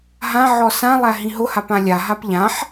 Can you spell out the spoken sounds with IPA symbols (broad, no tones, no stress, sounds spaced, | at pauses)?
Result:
ɦ ã ʕ ɔ s ã lˠ æ ɦ ĩ ɦ ʊ h a p ã lʲ a ɦ a p ʎ ã ħ